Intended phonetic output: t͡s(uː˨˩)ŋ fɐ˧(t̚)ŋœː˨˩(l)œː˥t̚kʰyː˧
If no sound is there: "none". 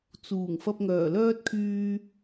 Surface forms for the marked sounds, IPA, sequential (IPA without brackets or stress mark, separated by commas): uː˨˩, p̚, l